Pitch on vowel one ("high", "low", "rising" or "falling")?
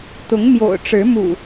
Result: rising